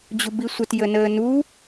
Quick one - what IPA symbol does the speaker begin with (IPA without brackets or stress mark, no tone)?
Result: d͡ʑ